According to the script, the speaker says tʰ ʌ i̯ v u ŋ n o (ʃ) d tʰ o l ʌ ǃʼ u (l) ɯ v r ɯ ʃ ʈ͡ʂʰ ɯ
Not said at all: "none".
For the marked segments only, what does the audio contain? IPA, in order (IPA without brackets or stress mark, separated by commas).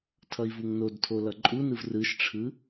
none, n